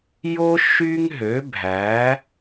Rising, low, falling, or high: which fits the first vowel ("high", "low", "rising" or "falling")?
high